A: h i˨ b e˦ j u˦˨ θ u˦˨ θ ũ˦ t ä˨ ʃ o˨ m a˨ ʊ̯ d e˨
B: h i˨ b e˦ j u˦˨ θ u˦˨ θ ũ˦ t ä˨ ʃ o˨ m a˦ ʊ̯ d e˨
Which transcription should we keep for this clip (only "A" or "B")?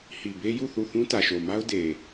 B